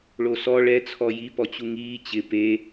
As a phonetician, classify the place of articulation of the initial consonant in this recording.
retroflex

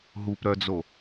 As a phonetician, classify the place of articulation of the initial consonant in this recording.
glottal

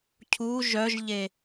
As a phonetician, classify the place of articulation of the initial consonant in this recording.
palatal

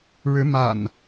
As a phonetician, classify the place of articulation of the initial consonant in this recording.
retroflex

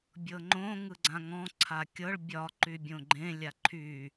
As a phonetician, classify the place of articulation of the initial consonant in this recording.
labial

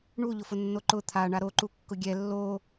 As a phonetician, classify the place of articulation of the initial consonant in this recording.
retroflex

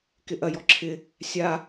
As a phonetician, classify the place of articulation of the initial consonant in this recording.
velar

